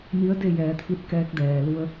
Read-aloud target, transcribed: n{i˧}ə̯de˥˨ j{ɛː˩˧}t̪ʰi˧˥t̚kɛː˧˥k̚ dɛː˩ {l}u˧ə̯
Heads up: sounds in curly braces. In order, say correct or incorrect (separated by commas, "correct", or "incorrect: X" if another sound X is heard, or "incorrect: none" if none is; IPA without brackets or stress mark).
incorrect: i˧˥, correct, correct